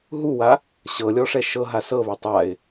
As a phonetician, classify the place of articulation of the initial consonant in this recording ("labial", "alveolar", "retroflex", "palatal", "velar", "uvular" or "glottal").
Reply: glottal